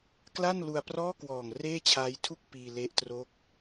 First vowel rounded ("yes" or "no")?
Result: no